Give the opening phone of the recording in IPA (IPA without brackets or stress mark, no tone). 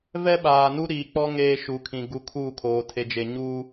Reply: v